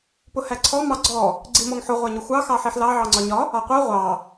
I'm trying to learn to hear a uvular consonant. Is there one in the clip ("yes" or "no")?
yes